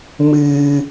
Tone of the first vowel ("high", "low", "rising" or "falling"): high